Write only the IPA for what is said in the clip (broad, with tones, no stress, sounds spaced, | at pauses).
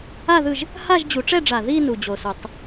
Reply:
a˥˧ ð ɯ˥˧ ʒ | h a˥˧ ʒ d͡ʑ u˨˩˦ ʈ͡ʂ ɛ˥˧ ɖ͡ʐ a˨˩ ð i˥˧ n u˨˩ d͡ʑ o˨˩ s u˨˩˦ tˤ